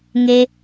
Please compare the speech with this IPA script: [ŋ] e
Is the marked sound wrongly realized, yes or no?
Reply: no